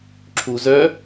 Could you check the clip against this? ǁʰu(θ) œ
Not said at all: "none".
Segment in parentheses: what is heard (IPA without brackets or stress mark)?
z